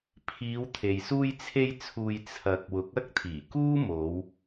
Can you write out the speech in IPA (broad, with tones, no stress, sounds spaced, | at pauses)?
pʰ iː˨˧ w t̪ʰ e˨ j s uː˧ j t͡sʰ e˧ j t͡sʰ uː˨ j t͡sʰ ɐ˨ k̚ w ʊ˨˥ k̚ ɐ˥ k̚ t̪ʰ iː˨˩ k uː˥ m o˨˧ w